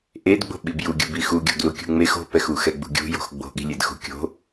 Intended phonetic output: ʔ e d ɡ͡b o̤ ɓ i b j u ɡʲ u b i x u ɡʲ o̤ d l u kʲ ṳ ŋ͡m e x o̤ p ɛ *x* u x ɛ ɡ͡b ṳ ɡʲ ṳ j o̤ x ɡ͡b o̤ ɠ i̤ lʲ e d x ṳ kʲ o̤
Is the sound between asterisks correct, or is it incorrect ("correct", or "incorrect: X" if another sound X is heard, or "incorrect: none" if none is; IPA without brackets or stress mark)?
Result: correct